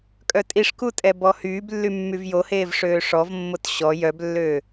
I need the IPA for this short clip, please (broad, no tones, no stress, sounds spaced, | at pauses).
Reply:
kʼ œ tʼ i ʂ k u tʼ ɛ b ɔ h yː b lː y mː y v j o h eː v ʂ øː ʂ ɔ v mː o t ɕ ɔ j œ b lː ø